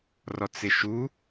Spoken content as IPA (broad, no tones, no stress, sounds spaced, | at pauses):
r ɔ t͡s ɪ ʃ u